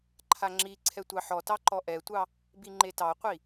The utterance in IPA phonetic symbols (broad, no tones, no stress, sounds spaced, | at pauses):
ǃʰ a ŋ͡ǁ i ǀʰ ɛ tʷ ɑ ħ ɔ t ɑ ǃ ɔ ʔ ɛ tʷ ɑ | b i ŋ͡ǃ e t ɑ qʷ i